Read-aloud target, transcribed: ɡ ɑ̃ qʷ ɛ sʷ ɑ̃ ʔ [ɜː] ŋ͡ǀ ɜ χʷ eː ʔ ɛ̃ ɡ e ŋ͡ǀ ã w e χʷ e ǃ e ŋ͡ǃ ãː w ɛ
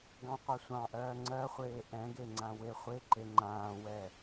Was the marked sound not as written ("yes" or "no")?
no